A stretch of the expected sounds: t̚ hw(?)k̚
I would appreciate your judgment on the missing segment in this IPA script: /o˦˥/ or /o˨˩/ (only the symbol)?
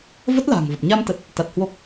o˦˥